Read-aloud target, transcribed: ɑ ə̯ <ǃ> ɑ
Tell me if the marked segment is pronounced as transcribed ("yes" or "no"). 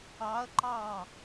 yes